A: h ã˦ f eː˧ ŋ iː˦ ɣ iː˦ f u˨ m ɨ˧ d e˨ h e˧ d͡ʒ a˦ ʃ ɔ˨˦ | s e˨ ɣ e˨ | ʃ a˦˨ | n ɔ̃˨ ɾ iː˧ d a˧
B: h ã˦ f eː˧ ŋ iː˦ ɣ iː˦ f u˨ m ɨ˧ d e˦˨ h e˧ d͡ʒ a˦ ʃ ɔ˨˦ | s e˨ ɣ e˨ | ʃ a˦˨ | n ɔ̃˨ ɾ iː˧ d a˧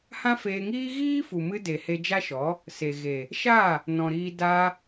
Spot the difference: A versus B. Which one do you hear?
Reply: A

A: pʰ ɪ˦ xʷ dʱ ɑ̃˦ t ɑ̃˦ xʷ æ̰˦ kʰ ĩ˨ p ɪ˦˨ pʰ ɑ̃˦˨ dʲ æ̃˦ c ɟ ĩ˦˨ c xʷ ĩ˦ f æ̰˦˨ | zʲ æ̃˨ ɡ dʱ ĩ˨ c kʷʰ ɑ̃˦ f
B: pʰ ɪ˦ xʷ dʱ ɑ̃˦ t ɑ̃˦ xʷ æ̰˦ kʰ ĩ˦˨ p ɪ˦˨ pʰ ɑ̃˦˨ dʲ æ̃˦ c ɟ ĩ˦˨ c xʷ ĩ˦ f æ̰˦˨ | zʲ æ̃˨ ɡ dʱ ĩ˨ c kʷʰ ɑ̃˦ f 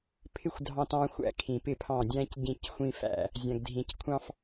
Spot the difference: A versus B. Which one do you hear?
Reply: A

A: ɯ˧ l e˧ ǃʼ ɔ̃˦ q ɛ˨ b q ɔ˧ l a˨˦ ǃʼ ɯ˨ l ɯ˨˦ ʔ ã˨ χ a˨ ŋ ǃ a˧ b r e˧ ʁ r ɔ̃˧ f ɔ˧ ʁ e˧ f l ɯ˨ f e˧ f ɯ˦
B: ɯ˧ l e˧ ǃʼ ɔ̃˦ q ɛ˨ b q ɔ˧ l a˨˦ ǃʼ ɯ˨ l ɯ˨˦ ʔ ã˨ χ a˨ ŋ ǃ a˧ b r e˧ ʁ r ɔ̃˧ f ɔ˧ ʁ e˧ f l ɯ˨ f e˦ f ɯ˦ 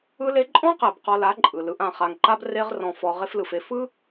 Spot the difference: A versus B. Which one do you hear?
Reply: A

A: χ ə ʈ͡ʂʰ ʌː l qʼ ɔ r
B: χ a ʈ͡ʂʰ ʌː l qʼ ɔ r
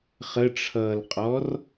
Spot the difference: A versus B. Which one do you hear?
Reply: A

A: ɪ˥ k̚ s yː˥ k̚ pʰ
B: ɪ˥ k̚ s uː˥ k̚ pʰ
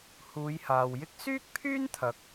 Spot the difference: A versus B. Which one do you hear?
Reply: A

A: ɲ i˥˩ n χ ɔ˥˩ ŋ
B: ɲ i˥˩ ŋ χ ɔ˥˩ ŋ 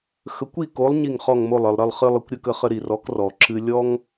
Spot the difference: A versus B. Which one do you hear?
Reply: B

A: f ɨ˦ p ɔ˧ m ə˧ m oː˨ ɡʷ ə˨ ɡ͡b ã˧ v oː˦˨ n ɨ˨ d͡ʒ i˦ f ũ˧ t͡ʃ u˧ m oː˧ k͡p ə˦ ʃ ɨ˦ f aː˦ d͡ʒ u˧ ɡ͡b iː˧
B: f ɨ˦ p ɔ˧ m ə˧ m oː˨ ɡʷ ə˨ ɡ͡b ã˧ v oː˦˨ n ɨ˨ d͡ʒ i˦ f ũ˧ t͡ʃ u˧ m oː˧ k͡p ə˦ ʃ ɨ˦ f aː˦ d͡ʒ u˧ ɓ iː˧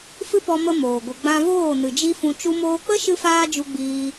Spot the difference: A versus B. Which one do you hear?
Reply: A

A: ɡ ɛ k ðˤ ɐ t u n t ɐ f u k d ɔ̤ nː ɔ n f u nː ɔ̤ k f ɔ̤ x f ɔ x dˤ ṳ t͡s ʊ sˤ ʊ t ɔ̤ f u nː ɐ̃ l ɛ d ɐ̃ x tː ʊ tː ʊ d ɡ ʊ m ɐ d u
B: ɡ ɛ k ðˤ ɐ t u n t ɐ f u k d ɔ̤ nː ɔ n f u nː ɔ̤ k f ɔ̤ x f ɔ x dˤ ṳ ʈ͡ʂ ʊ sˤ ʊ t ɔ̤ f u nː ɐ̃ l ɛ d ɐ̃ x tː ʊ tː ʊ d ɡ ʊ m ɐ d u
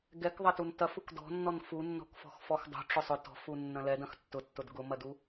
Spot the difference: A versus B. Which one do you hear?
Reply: B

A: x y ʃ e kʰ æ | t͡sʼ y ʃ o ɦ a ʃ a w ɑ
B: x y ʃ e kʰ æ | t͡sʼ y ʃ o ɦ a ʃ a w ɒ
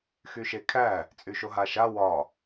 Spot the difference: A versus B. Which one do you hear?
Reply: B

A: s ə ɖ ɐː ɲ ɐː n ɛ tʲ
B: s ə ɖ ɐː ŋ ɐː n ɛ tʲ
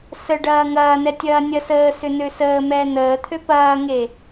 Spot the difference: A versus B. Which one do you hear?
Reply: B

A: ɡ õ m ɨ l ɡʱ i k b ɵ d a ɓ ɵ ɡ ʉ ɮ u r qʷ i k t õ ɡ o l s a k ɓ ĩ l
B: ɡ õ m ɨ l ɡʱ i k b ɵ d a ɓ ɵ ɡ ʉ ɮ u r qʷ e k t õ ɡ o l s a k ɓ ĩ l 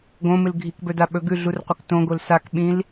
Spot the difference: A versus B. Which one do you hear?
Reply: B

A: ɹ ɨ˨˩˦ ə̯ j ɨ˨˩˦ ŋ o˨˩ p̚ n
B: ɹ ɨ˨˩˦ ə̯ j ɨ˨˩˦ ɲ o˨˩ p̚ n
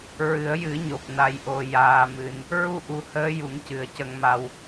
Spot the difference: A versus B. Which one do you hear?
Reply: B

